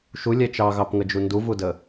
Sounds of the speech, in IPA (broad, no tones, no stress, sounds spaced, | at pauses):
ʃ u lʲ ɛ t͡ʃ ɑ ɣ ɑ p ŋ ə d͡ʒ u n d u v u d ə